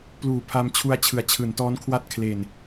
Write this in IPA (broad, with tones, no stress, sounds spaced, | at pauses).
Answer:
p l uː˨˩ pʰ a˧ m t͡ɕʰ u˧ a̯ t͡ɕʰ ɯ˩˦ a̯ t͡ɕʰ ɯː˩˦ n t ɔː˦˥ n kʰ w a˥˩ t̚ kʰ l e˨˩ n